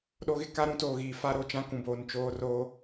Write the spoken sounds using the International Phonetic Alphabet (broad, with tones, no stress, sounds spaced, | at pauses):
ɗ o˦ ɣ ɪ˦ k a˦ ɾ ũ˦ t oː˨ ɣ iː˨ f a˦ ɾ o˨ t͡ʃ ã˦ k ũ˨ b oː˨ n t͡ʃ oː˦ r oː˦